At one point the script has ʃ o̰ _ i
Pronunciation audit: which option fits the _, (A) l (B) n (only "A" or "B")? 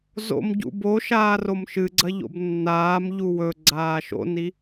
B